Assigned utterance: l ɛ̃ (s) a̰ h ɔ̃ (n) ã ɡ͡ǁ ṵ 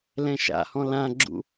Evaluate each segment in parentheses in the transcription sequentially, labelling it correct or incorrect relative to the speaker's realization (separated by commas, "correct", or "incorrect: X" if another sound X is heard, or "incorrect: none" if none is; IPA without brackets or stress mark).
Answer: incorrect: ʃ, incorrect: l